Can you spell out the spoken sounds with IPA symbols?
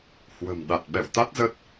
h w ə̤˨˩ m ɗ a˨˩ t̚ ɓ ɛ̰˧˨ w t̪ a˦˥ t̚ z ə˦˥ t̚

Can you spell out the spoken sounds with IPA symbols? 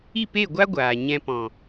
i˦˨ p e˦˨ ɡʷ a˦ ɡʷ aː˨ ɲ ɛ̃˧ p ɔ̃˨

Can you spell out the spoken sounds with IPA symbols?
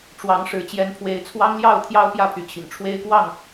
ʈ͡ʂ w ɑ˨˦ ŋ ʂ ɻ̩˨˦ t͡ɕ j ɛ˨˦ n pʰ w e˨˦ ɪ̯ t͡sʰ w ɑ˦ ŋ l j ɑ˥˨ ʊ̯ t̪ʰ j ɑ˦ ʊ̯ p j ä˥˨ pʰ y˨˦ t͡ɕʰ ḭ˨˩ ŋ ʈ͡ʂʰ w e˦ ɪ̯ k w ɑ˥˨ ŋ

